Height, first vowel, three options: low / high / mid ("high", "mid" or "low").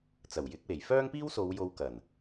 low